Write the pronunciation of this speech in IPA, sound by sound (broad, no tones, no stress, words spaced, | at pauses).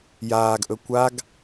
jaːɡʔɵ kʷaɡ